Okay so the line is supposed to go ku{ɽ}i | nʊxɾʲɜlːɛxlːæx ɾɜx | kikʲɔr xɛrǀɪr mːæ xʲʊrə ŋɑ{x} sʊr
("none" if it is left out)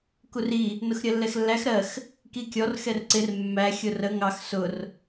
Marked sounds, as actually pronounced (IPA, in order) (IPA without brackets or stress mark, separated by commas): r, x